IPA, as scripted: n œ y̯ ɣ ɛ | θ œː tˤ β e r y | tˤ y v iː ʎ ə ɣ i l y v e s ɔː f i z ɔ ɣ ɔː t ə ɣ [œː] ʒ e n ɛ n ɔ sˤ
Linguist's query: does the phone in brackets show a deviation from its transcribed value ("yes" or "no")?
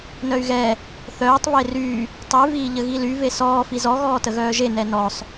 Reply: no